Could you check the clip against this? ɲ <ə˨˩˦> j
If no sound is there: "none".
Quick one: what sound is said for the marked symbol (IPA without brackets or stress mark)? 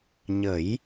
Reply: ə˨˩˦